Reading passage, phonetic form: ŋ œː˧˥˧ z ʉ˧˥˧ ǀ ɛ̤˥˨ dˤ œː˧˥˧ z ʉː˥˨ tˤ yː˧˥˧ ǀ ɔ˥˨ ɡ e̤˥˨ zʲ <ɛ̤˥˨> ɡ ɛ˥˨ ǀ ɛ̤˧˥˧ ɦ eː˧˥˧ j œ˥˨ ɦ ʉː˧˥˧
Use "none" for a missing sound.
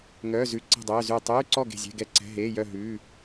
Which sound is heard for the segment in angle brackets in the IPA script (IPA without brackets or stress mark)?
ɛ̤˧˥˧